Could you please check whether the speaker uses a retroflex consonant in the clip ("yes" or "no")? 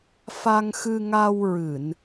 no